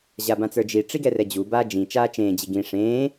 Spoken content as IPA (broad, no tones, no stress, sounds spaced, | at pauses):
ʑ a b ã t͡s ə˞ d͡ʒ i ʈ͡ʂ i ɡ ɛ r ɛ d͡ʑ u b aː d͡ʒ ĩ t͡ʃ aː t͡ʃ ẽː d͡ʑ i ɡ ĩ ʂ ẽː